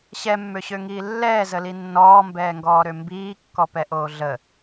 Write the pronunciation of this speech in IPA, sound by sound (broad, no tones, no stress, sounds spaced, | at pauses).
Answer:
ɕ ɛ mː ø ɕ ø ŋ iː lː ɛː z ə l i nː ɔː m b ɛː ŋ ɡ ɔː ɾ ø m b iː kː ɔ p ɛ ʔ oː ɮ ə